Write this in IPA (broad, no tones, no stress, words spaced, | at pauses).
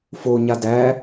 foɲa dæ